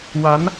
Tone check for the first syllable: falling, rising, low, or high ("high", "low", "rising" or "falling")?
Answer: rising